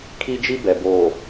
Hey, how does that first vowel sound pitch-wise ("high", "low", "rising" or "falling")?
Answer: high